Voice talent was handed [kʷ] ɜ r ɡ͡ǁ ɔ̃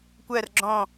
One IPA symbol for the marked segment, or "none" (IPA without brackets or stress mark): kʷ